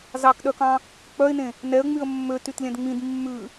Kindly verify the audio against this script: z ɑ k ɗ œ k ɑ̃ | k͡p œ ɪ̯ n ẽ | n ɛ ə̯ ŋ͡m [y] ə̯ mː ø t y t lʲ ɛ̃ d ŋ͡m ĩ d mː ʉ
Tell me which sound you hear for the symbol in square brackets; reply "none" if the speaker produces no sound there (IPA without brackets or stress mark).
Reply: y